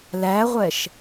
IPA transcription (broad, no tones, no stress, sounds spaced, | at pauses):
l æ ʁʷ ɛ ʃ